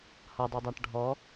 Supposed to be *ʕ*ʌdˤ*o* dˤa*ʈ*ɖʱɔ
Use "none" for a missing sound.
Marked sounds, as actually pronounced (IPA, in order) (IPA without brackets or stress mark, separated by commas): h, u, ʈ